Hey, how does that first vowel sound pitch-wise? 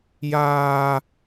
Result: high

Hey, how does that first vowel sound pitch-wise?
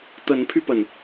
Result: rising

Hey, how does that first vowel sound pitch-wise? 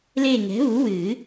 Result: falling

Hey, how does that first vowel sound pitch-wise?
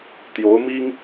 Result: rising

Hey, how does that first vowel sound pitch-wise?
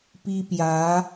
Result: high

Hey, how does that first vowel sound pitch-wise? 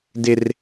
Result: high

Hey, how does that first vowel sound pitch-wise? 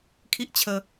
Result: high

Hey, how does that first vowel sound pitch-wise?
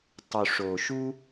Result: low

